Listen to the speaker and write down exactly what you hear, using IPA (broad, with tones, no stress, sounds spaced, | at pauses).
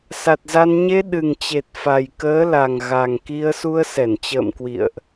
s a˨˩ t̚ z a˧ n ɲ e˧ ɗ ɨ˨˩ ŋ t͡ɕ e˨˩ t̚ f a˨˩ j k əː˨˦ l a˨˩ ŋ ɣ a˨˩ ŋ k i˧ ə̯ s u˧ ə̯ s ɛ˧˩ n t͡ɕ ə̰ː˧˨ m k w ḭ˧˨ ə̯ ʔ